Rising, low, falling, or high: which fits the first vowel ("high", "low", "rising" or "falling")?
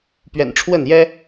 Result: low